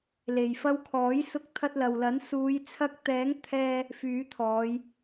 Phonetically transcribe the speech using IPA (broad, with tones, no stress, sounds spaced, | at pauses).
l e˨ j f ɐ˧ w kʰ ɔː˨˥ j s ʊ˧ k̚ t̪ʰ ɐ˧ t̚ l ɐ˨ w l ɐ˨˥ n s uː˨˧ j t͡sʰ ɐ˧ k̚ t̪ ɛː˨˥ ŋ t̪ʰ ɛː˧ | f yː˨˥ t̪ʰ ɔː˨˧ j